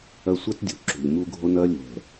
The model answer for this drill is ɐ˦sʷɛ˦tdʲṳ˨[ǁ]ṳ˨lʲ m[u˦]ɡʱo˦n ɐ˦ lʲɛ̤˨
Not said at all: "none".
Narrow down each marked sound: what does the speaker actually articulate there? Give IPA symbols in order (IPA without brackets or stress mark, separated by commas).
ǁ, u˦